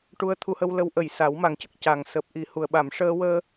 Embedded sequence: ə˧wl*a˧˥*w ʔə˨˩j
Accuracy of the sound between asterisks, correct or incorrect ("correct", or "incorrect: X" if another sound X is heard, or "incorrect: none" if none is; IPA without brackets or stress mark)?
incorrect: ə˧˥